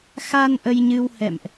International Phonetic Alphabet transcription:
xa˧n ʔə˧jɲɨ˧whɛ̰˧˨mʔ

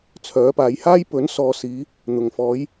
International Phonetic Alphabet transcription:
t͡sʰœː˨˥paː˨˧jhaː˥j pɵ˨˥nsɔː˨ siː˨˧ | n̪ʊ˨˩ŋfɔː˨˧j

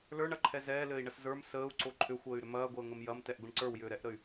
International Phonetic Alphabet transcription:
lə˞ɳɐǃʰɛ zɛːlɘːi̯ɳəs zə˞m səːu̯ǀo ǃʰʏxʷəːy̯ɾʏ mɐːɡʷəːŋəm jɐmtɛʔɡʷəɳ ǀə˞wjʏːɾɛʔɾəy̯

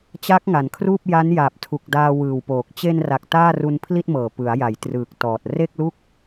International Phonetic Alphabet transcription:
t͡ɕa˦˥k̚ŋa˩˦nkʰruː˥˩p̚ ja˦˥njaː˨˩p̚tʰu˨˩k̚ daː˧wɯː˨˩wpoː˨˩k̚ t͡ɕe˧nra˨˩k̚ taː˥˩ru˧n pʰli˥˩t̚mɤː˨˩ pɯ˩˦a̯ja˩˦j trɯː˨˩k̚tɔː˨˩t̚ re˥˩k̚lu˥˩k̚

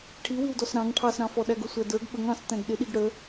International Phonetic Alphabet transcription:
ʈʰiwiwdɔs ɾɑ̃ŋ ʈʰɑsɾɑ̃fɔ ɗæɡʊsʷædə˞ɡ ɓəŋ ɑ̃s tæ̃ɡɗɪ ɗiɡɽə

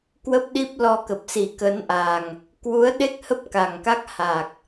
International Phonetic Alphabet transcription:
kwə˦˥p̚ɗi˦˥p̚ lɔ˧kə˨˩p̚si˨˩ kə˨˦nʔa˨˩ŋ | kwu˨˦ə̯ɗe˦˥k̚hə˦˥p̚ ka˨˩ŋka˦˥k̚ha˨˩k̚

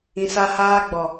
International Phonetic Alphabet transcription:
ĩ˨sa˦ haː˦ɡ͡bɔ˨

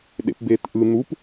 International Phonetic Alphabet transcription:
ɗḛpbeːtʔɯ n̪up

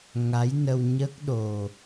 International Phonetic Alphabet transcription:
ŋa˧˥jnə˧w ɲə˦˥k̚ɗo˨˩

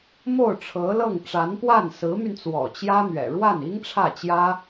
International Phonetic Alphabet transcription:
mo˥˩ʊ̯ʈ͡ʂʰɤ˧˥lɤ˥˩ŋ ʈ͡ʂa˧˥npwa˥˩n sɹ̩˧˥my˧nt͡swɔ̰˨˩ t͡ɕjä˥n̪ɥɛ̰˨˩ ɻwa˥˩ni˥ŋʈ͡ʂʰä˥˩t͡ɕjä˥

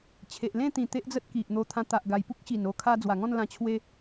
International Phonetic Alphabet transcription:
t͡ɕʰe˨ʔlẽ˥˧t̪ĩ˨˩ t̪e˦ʔd͡zə˦t̚ki˨ʔ n̪o˧t̪ʰã˧t̪a˨ʔɡa˨˩j pu˦k̚ɕi˨˩n o˧kʰa˧ d͡zwa˨˩ŋɔ̃˥˧nlã˧ t͡ɕʰwe˧

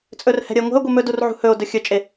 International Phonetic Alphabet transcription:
t͡sʼɵrhɛ̤ ɾʲəe̯ŋʷɛ̤o̯ɡʷe mɵdur ʕṳhɵo̯dɵ xʲɵt͡ʃʼe

